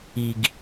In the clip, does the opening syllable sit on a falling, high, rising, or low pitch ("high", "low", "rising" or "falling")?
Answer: low